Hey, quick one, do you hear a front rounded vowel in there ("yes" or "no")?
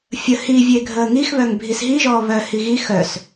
yes